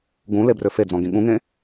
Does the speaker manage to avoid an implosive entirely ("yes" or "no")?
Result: no